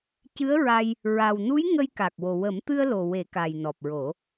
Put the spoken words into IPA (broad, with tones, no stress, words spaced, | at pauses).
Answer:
cɨ˧˥ə̯ɹa˧j | ɹa˨˩wnu˧˥j ŋə˧jka˨˩k̚wo˨˩ wə˨˩˦mt̪ɨ˧ə̯lo˨˩ we˨˩˦ka˨˩jnɔ˨˩p̚ɹo˨˩˦